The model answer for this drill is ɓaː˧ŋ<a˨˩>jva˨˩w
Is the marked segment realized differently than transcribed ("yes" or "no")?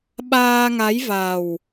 yes